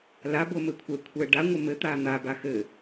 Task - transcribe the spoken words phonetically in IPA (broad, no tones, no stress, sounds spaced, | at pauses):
l a b o m ɘ kʷʰ ɛ kʷʰ ɛ ɖ a ŋʷ ɨ m ɘ t̪ a n̪ a b a x ɘ